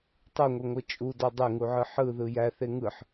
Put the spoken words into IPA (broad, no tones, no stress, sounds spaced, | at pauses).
tˤ ɯ ŋʷ i ŋʷ ɯ t͡ʃʼ u d ɔ dˤ ɛ ŋ u ʕ ɯ ħ ɯ ð ɯ j æ θ e ŋ ɯ ħ